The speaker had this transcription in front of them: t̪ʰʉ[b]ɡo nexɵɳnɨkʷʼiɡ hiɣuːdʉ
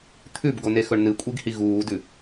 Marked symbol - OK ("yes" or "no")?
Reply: yes